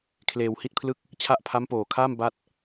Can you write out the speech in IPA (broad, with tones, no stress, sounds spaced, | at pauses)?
kʰ l eː˧ w h i˥˩ t̚ pʰ l ɯ˥˩ k̚ | t͡ɕʰ a˦˥ ʔ pʰ a˦˥ m p oː˨˩ kʰ aː˥˩ m b a˥˩ t̚